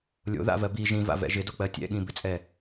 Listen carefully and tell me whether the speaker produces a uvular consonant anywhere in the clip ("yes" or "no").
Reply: no